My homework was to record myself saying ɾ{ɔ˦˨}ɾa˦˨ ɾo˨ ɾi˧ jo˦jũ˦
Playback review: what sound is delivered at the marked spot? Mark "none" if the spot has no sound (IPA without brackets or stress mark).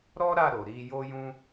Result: ɔ˦